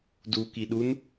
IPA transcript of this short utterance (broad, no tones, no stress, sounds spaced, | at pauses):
d u k i ɗ u n